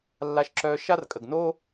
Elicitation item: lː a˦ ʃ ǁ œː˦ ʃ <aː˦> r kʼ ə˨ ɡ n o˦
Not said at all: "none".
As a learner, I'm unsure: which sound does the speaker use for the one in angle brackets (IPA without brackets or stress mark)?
a˦